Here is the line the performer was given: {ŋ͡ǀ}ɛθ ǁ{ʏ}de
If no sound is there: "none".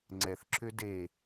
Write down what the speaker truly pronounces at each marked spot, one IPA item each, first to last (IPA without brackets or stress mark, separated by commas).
ŋ͡ǀ, ʏ